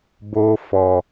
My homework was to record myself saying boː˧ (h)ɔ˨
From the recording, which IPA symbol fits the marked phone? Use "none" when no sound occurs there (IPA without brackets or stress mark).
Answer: f